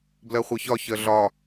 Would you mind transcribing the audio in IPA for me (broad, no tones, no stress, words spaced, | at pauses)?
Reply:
blɜχʷɜçɒ çɜɮɒ